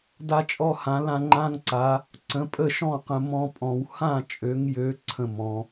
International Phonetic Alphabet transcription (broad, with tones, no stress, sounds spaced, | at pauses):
d a˦ t͡ʃʼ ɔ˦ h ã˨˦ l ã˦ ŋ͡ǃ ã˦ ŋ ǀ a˨˦ | ǀ ə̃˨˦ pʼ ə˥˨ ʃ ɔ̃˥˨ q ə̃˦ m ɔ̃˦ pʼ ɔ̃˨˦ w h ã˥˨ t͡ʃʼ ø˨˦ ŋ j ø˨˦ ǀʰ ə̃˥˨ m ɔ̃˨˦